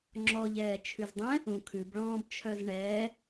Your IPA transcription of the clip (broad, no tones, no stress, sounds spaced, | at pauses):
ŋ͡ǁ ɔ ʎ ɛː t͡ʃʰ ʉ z dˤ ɛ̃ | ũ kʰ ʉ b ɭ ɔ̃ː b t͡ʃʰ œ z ɳ ɛː